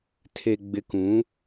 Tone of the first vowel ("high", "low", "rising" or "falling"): low